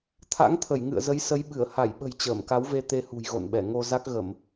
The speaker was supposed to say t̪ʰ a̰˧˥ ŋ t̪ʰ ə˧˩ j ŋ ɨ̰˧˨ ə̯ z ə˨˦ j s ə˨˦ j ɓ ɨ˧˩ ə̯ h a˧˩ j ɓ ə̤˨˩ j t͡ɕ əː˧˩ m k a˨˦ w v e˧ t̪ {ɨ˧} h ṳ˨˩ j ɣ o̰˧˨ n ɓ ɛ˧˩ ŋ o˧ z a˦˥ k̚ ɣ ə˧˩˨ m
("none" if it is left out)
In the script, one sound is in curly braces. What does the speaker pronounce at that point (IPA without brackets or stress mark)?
e˧